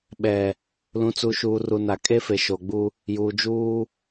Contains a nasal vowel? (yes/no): yes